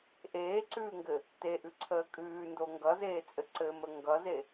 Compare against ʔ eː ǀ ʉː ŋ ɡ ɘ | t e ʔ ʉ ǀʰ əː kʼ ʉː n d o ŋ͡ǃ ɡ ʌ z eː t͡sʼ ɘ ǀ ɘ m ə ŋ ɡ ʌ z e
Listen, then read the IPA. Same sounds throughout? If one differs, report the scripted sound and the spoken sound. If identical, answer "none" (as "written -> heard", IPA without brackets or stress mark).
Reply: ŋ͡ǃ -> ŋ